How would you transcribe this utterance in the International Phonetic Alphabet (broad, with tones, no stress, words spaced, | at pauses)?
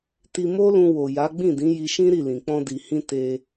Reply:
ti˧mo˦lũ˧ wo˨ja˨˦ ɡ͡bĩ˦˨dĩ˨˦ji˧ʃĩ˦ ɾi˦˨lĩ˨ k͡pɔ̃˧di˨hĩ˧ te˧